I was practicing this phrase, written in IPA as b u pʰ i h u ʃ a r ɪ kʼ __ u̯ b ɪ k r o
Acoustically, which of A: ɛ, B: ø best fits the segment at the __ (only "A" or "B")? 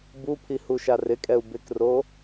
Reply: A